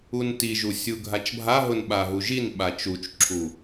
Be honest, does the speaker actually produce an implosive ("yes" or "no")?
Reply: yes